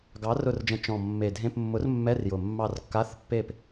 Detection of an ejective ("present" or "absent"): absent